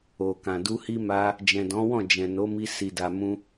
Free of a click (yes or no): yes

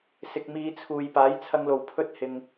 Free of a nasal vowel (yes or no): yes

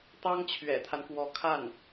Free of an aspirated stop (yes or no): no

